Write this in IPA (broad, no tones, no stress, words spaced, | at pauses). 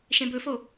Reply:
ʃẽbɵfo